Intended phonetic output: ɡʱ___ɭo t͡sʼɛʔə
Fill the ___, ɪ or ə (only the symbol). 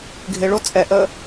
ɪ